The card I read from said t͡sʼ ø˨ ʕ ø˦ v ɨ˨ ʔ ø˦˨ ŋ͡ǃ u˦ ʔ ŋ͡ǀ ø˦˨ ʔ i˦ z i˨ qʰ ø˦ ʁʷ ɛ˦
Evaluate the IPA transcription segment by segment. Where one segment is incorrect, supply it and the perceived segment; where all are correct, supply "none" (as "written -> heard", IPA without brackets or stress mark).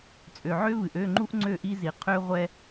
none